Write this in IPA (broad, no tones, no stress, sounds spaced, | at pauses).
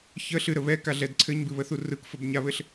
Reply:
ç ə ɬ ɨ ɾ ə β ɛ k a ɮ ɛ d ǀʰ ɘ ɲ b ɨ β ə θ u r ɯ k f ə b ɲ a β ɘ ɬ